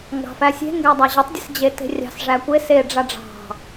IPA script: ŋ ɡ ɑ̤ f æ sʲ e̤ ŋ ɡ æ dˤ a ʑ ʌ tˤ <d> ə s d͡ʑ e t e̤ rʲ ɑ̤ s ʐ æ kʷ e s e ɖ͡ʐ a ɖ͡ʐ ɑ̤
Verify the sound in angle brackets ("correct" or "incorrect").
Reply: incorrect